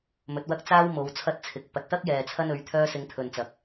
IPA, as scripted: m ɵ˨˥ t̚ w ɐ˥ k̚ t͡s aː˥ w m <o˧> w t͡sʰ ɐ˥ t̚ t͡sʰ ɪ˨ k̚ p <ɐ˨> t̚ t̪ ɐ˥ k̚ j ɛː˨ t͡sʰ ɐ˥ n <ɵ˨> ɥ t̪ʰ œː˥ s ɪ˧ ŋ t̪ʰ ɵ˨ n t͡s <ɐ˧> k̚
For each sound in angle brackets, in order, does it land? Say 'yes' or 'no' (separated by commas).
no, yes, no, no